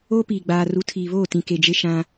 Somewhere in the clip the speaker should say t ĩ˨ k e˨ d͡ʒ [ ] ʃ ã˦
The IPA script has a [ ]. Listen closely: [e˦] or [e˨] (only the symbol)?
e˦